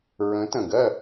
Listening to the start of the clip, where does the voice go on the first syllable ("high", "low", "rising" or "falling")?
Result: rising